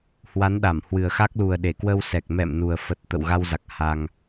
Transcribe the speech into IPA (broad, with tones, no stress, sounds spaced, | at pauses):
h w a˨˦ n ɗ a˧˩ m h w ɨ˨˩ ə̯ x a˦˥ k̚ l u˨˩ ə̯ ɗ e˧˩ k w ə˧ w s ɛ˨˩ k̚ m ɛ̰˧˨ m n u˨˩ ə̯ f ə˨˩ t̚ t̪ ə̰˧˨ w ɣ a˧ w z a˨˩ k̚ h a˧ ŋ